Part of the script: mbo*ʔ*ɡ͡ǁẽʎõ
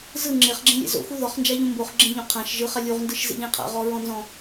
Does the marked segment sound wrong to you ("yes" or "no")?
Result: yes